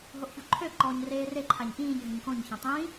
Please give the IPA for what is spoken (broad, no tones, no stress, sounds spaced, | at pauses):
ɦ o ʔ ç o ǃʰ ø ǃ ɔː ɲ r eː r e ǃʰ a ɲ ʔ ĩː ɲ ɦ ə̃ ɲ k õ ɲ ç ã tˤ ĩ